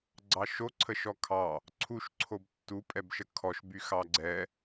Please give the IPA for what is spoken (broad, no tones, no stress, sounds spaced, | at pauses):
ɡ͡ǀ ɑ ʃ o ǀʰ ə ʃ ɔ kʰ ɑ | ǀʰ u ʃ ǀʰ o b tː u pʼ ɛ b ʃ ə kʰ ɔ ʃ b y x ɑ ɡ͡ǀ ɛ